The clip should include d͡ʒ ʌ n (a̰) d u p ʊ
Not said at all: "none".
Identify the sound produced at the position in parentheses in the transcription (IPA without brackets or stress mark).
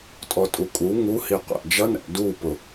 æ̰